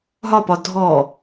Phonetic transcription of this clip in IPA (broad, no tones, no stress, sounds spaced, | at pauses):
ɦ ɒ p ɒ dʱ ɔ